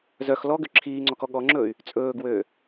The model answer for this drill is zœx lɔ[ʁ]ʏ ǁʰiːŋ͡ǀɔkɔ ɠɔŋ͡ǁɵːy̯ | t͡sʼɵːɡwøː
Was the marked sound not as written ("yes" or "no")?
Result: yes